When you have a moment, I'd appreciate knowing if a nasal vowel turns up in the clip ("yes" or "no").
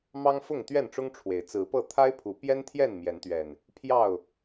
no